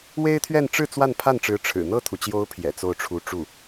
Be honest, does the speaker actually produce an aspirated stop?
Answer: yes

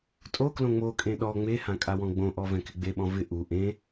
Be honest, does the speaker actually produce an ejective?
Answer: yes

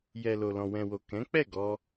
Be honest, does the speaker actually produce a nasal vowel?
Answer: yes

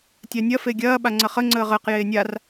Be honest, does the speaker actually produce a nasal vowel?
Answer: no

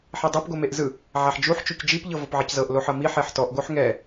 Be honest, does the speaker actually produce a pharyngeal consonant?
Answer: yes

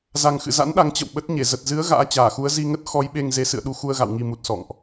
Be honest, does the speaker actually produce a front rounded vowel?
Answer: no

